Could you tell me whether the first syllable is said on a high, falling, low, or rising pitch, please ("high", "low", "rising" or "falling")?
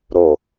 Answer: low